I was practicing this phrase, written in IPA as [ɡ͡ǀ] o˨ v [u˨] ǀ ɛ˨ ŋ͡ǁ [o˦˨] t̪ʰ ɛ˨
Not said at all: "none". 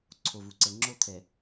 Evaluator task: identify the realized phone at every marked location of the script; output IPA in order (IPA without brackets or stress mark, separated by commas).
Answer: ǀʰ, u˨, o˦